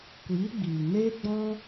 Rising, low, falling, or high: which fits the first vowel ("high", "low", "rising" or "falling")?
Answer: rising